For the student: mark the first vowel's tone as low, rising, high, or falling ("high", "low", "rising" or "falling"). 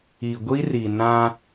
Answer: low